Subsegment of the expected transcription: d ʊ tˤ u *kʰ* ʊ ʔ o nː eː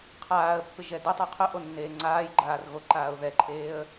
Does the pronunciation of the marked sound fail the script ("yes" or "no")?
yes